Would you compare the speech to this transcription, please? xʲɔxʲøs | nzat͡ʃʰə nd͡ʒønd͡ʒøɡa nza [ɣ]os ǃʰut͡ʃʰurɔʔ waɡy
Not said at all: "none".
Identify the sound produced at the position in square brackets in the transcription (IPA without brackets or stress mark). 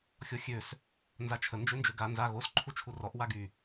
ɣ